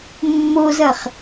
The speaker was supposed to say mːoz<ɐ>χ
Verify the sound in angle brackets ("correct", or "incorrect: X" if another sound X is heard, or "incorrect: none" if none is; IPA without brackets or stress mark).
correct